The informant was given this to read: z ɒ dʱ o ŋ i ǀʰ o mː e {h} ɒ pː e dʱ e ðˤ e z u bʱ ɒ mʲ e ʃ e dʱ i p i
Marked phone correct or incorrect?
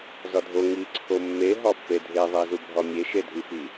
incorrect